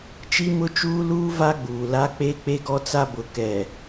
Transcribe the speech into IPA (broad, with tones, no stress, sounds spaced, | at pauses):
t͡ʃ i˦ m ʊ˦ t͡ʃ uː˦ l uː˦ v a˦ ɡ͡b uː˨ l a˦ k͡p e˦ k͡p e˦ ɡ ɔ˦ t͡s a˦ b ʊ˨ k ɛ˨